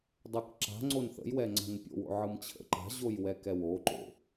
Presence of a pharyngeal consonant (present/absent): present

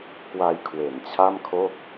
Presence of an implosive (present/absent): absent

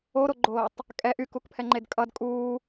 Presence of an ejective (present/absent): present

